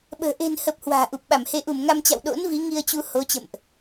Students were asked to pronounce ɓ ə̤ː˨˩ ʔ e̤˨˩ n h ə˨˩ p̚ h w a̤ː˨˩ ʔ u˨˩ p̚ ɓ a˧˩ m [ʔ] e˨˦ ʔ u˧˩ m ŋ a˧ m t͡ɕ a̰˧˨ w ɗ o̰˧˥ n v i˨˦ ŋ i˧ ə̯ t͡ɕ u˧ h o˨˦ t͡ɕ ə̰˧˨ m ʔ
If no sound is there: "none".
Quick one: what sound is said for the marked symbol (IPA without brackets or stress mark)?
h